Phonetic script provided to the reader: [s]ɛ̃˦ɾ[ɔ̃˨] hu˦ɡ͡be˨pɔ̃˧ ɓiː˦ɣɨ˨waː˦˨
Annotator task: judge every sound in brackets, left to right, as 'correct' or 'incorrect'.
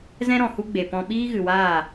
incorrect: z, correct

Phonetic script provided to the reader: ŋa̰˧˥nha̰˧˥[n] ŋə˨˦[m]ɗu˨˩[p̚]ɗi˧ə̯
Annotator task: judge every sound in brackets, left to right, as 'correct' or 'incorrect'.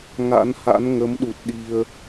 correct, correct, incorrect: t̚

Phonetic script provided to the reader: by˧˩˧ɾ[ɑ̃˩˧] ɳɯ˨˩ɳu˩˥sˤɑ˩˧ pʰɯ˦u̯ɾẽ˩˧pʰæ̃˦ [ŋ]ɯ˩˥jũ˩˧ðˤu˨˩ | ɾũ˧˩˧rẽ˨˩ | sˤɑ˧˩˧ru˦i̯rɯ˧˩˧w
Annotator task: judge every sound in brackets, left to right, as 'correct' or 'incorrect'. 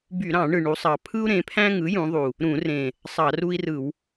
incorrect: ɑ̃˧˩˧, correct

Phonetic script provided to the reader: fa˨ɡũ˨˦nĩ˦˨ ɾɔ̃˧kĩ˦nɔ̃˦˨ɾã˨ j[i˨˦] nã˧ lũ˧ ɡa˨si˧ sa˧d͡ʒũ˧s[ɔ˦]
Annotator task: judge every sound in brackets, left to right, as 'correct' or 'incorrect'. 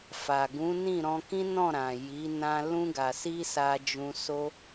correct, incorrect: o˦

